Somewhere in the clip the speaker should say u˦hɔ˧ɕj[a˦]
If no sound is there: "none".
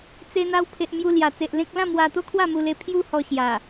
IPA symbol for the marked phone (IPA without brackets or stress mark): a˨˩